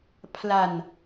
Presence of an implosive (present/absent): absent